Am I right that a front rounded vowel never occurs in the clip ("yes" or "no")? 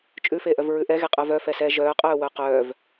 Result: no